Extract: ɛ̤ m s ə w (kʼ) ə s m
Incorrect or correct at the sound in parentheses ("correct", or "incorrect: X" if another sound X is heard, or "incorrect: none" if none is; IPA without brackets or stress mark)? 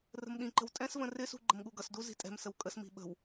correct